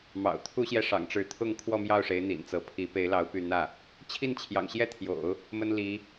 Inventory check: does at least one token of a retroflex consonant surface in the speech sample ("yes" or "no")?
yes